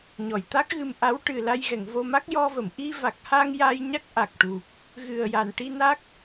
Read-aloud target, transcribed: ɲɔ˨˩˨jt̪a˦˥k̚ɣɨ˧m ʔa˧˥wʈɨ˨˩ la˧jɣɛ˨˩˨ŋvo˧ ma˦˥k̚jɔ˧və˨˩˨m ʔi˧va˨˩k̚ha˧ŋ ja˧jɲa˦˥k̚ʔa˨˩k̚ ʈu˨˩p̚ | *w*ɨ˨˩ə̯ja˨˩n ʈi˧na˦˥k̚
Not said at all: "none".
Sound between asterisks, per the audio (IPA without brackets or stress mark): ɣ